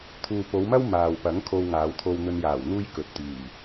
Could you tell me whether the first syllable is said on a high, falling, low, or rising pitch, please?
low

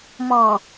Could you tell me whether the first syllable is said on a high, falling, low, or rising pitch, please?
low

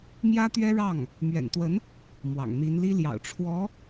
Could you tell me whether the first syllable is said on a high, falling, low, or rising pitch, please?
high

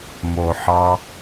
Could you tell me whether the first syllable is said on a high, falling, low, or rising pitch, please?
low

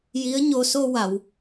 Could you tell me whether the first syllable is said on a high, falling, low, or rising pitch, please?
rising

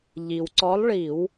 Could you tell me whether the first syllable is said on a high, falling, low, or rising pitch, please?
low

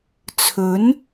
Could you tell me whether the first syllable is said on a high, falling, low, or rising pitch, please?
rising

